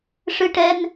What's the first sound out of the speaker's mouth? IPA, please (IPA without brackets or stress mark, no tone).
ʂ